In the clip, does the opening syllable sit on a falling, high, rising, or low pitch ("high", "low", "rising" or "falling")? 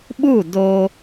falling